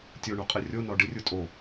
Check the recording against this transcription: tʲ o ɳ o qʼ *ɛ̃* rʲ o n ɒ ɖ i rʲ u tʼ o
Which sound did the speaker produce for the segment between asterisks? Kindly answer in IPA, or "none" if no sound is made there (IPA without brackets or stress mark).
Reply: ɛ